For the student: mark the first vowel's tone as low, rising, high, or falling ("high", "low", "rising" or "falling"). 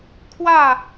falling